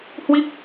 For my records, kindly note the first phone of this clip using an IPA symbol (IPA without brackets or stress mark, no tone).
h